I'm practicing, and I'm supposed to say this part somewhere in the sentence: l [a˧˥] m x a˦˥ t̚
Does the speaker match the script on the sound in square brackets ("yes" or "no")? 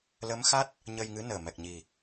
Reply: no